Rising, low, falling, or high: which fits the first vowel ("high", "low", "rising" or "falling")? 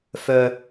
high